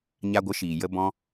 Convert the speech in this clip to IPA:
ɲa˧ɡʷə˨˦ ʃiː˨ jə˧bɔ̃˧

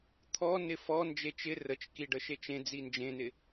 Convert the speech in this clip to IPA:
t̪ʰɔ nɪfɔ nd͡ʒet͡ʃɪ rət͡ʃki ɖəʃet͡ʃẽ d͡zind͡ʒẽnɪ

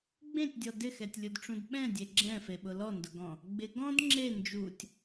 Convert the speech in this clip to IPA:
ɡ͡bẽtʲdʲɔ dɪxɛtʲlʲudʈ͡ʂũd ɓɛ̃dʲe ɡ͡ǁɛ̃feɓʊ lɔndʊɡɔ̃ | ɡ͡bɪ ɡɔ̃d ŋ͡ǁe nd͡ʒutʲ

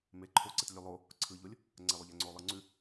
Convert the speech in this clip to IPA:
meǃʰoǀetlʲʉ lˠo | ǀʰɯʎolʲ | ŋ͡ǀɛlˠoʎɛŋ͡ǀo lˠɯŋ͡ǀʉ

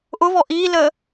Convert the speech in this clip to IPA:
ʔʊvɔ ʔilə

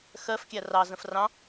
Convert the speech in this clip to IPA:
xɜf kʲærɑ zə̃frɑ̃

